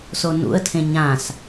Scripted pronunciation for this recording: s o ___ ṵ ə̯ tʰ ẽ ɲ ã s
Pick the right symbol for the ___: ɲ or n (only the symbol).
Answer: n